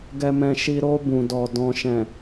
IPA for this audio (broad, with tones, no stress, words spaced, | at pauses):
ɡɛ˧mɛ̃˧ʃi˧ ɾo˧ bũ˨dɔ˨ dɔ̃˨ʃɛ̃˨